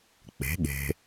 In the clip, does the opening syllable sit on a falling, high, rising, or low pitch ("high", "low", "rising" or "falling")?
rising